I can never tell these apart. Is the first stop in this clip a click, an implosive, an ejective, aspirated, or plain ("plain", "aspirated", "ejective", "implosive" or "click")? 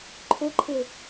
click